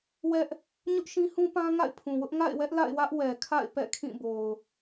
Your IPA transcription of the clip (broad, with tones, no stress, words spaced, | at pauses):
wɛ˦ʔ | ɲʊ˦ʔʃĩ˦hũ˦pã˦ ŋa̰˦˨ɪ̯pʰũ˨wʊ˦ʔ ŋa̰˦˨ɪ̯wɛ˦ʔ la̰˦˨ɪ̯wä˦ʔwɛ˨kʰa̰˦˨ɪ̯ pɛ̰˦˨kʰĩ˦˨bo˨ʊ̯